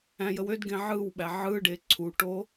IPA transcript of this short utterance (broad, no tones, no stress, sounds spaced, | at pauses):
æ̃ j ə w ø d ɡ ẽ ʕ ɯ w ɓ æ ʕ ɯ ɖ e ǀʰ u ʈ o